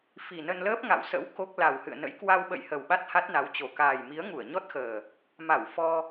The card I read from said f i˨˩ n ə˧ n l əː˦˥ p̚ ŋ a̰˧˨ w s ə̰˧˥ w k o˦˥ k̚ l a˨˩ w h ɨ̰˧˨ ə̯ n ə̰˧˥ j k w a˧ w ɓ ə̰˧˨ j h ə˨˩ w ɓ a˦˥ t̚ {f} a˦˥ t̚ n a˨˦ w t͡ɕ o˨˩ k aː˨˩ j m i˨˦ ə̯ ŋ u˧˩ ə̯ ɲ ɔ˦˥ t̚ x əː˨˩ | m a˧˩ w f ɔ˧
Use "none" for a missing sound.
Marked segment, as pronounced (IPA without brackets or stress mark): h